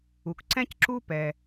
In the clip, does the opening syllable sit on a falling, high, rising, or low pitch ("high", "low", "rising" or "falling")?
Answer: low